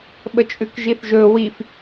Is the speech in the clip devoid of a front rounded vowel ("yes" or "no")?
yes